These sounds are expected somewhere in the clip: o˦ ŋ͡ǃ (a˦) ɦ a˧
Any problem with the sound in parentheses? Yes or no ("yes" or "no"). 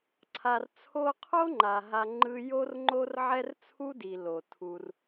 yes